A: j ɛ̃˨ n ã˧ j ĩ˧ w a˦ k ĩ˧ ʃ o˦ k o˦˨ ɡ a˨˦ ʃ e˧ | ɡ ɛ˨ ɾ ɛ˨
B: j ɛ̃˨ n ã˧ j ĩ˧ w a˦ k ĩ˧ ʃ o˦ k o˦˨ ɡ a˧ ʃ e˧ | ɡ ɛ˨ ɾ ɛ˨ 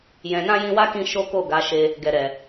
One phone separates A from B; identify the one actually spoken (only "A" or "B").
A